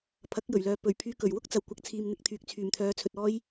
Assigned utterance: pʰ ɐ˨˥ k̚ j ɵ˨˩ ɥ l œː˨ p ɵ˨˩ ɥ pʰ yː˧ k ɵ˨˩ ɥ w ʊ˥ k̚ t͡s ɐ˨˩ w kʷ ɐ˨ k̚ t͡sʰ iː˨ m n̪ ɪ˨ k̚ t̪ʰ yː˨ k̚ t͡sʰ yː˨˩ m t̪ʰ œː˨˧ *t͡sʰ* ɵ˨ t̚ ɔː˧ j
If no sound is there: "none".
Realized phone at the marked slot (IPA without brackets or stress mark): t͡sʰ